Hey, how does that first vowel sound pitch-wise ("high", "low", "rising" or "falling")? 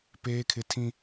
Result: high